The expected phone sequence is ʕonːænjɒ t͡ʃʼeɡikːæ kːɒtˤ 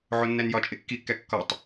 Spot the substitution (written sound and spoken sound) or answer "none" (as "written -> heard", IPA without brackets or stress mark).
ɡ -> kː